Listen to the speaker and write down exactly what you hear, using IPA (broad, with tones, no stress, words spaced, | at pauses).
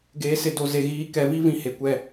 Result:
ɡeː˨sɪ˨ do˨ze˨ ɣiː˨kɛ˨vi˦ vĩ˦he˨kʷɛ˦˨